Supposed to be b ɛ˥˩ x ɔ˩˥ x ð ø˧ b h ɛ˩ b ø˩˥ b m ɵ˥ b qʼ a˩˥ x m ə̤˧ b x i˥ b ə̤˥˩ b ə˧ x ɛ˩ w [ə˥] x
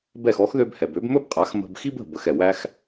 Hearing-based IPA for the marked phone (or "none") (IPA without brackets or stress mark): æ˥